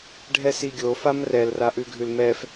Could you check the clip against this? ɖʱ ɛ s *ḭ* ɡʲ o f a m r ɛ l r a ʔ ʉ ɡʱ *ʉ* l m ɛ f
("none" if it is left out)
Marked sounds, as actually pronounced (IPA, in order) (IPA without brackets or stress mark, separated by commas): i, ʉ